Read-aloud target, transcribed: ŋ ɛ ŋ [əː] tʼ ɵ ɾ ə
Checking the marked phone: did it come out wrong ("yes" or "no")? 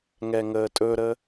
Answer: no